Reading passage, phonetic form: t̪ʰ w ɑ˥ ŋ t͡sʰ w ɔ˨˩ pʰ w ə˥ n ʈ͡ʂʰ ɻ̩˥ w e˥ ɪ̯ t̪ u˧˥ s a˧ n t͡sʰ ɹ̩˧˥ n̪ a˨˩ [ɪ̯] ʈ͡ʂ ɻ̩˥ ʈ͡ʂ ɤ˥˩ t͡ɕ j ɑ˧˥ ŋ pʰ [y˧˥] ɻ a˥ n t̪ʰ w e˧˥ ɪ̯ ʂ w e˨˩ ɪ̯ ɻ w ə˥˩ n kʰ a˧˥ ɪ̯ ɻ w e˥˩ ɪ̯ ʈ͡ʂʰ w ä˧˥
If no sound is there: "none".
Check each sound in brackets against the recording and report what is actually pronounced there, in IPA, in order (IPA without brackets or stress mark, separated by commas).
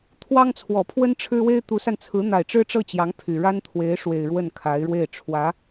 ɪ̯, y˨˩